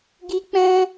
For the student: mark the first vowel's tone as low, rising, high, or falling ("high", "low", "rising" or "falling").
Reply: high